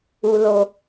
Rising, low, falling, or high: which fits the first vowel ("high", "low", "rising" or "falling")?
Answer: low